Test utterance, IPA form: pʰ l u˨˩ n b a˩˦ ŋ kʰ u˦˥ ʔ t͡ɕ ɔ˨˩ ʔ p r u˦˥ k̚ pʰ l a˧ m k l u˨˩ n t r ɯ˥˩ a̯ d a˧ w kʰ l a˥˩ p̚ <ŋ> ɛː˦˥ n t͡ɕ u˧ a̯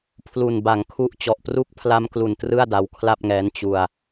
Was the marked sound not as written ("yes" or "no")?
no